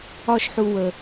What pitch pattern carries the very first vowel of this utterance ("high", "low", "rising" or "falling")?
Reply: high